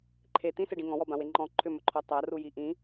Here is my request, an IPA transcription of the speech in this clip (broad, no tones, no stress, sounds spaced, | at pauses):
ǃʰ e t̪ ĩ s e ɖ ĩ ŋ ɔ̃ w ɔ b ã w e ŋ͡ǃ ɔ̃ ǃʰ ʏ m ɵ ǃʰ ɔ tˤ a r u j i ʔ ĩ